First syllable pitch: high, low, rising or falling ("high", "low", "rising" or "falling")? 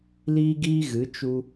high